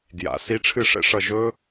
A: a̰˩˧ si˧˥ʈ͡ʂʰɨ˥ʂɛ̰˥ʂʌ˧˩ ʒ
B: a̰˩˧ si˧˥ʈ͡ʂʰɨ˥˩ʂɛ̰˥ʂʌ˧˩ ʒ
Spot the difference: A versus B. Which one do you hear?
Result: B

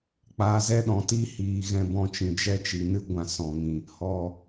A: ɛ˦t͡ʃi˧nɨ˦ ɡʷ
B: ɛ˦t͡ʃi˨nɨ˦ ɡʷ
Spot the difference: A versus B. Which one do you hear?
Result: B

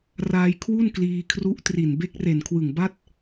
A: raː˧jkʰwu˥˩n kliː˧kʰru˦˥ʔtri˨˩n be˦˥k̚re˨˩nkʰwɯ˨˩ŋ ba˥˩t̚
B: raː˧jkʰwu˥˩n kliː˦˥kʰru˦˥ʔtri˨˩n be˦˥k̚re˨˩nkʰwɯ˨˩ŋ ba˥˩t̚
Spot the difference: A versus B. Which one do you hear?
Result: A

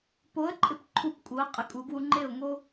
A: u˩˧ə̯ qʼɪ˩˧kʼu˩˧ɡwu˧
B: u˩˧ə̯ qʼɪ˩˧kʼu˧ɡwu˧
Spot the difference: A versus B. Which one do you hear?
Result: A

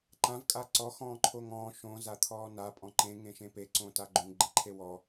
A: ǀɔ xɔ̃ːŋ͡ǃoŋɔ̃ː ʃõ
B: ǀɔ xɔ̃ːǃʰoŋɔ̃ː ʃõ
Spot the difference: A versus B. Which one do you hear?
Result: B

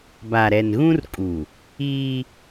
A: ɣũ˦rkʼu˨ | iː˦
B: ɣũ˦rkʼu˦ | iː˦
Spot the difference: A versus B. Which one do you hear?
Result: A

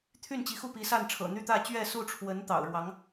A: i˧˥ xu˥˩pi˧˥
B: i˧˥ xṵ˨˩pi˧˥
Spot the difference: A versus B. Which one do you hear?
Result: A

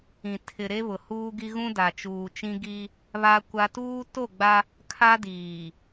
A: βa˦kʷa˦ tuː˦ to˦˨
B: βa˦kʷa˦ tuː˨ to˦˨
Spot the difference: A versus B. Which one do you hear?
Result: A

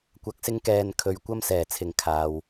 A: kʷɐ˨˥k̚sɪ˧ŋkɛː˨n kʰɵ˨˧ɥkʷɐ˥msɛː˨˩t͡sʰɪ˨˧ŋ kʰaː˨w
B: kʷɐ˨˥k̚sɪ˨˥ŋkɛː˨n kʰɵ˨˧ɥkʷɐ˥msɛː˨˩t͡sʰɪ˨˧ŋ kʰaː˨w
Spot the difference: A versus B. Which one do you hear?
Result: A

